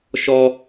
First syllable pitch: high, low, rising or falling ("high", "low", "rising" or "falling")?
high